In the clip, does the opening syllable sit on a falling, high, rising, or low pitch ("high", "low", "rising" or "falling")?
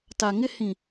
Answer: low